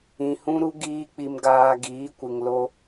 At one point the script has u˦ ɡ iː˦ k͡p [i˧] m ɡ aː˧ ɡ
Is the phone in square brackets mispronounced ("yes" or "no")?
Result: no